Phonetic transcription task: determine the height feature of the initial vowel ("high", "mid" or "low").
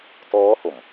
mid